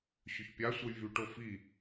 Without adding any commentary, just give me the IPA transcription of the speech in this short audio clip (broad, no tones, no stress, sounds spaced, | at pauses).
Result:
ɕ ʏ ç pʲ a sʷ ə j v y ʈ o f i